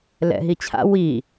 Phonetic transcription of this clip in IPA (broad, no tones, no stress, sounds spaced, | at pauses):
l ɛ̰ ɦ i t͡ɕʰ a̰ w i